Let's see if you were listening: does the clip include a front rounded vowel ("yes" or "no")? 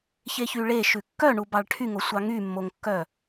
yes